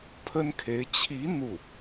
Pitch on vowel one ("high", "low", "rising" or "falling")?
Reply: high